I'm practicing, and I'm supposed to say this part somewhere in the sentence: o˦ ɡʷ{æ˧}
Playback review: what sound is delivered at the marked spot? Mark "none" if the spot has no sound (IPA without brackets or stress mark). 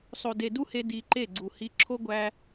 æ˧